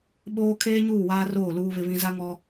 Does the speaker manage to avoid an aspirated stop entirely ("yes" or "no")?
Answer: no